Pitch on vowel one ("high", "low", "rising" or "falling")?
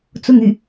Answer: falling